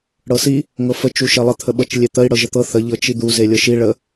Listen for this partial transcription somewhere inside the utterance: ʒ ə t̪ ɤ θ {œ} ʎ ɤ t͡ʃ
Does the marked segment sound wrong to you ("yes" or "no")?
yes